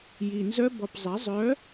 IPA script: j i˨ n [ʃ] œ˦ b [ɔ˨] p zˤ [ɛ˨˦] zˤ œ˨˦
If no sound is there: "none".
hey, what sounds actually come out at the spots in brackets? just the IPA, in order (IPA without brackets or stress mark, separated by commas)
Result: z, ɔ˨, ɛ˨˦